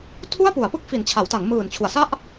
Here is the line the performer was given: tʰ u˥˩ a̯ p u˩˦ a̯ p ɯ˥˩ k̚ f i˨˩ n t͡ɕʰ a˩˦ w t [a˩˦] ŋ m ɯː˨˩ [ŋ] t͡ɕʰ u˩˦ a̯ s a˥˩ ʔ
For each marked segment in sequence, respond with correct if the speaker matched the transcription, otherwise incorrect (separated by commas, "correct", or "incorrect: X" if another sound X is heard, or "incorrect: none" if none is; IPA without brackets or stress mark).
correct, incorrect: n